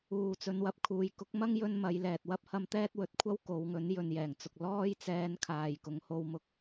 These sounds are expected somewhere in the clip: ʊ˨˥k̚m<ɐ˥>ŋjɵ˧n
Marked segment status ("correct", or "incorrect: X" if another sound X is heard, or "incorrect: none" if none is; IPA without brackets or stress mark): correct